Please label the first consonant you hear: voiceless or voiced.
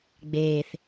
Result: voiced